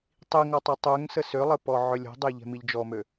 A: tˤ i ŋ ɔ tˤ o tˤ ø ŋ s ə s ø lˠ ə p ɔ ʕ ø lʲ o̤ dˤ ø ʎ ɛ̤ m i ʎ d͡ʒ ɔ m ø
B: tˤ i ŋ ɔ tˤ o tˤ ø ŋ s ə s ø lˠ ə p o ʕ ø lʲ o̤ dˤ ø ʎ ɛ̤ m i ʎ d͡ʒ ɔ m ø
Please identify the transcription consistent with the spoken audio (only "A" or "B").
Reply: A